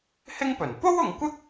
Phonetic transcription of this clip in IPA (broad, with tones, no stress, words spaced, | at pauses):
hɪ˥ŋpɵ˨˩n po˥wʊ˨ŋkʷɪ˥k̚